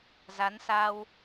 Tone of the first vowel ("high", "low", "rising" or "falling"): rising